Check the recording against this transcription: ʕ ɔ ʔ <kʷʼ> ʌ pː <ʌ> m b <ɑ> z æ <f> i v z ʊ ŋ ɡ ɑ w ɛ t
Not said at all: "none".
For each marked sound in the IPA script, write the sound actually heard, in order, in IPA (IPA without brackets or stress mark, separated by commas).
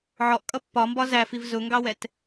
kʼ, ɒ, ɒ, f